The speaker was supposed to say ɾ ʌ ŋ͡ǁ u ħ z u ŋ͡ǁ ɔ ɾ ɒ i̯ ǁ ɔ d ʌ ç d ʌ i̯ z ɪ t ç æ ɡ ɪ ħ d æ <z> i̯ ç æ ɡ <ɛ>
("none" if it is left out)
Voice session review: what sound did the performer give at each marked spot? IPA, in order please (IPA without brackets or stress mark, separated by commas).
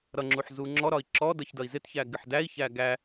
none, æ